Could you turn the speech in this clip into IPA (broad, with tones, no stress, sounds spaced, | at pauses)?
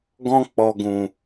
ɡ ɔ̃˧ k͡p ɔ˨ ɡ ũ˨